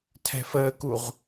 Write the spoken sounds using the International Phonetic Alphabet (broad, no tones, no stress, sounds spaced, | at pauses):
tʰ ɛ̤ f əː k u ʁ